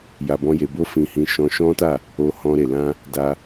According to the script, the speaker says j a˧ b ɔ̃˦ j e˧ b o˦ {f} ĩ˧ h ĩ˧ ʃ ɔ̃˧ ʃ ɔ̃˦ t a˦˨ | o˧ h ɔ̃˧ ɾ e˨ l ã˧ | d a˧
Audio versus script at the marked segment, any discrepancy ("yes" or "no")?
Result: no